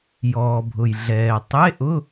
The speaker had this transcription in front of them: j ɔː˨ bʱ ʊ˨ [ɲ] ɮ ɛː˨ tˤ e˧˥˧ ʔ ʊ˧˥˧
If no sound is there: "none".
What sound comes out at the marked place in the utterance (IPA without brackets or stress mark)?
j